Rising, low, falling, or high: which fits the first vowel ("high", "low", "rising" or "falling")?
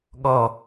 low